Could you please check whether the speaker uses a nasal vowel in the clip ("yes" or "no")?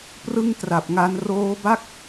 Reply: no